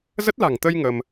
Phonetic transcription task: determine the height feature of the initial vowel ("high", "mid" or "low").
mid